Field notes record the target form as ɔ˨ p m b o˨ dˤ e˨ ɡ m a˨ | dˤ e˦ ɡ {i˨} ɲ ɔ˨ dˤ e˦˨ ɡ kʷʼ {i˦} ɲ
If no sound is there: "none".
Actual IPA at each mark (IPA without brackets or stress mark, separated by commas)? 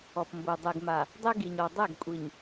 i˨, i˨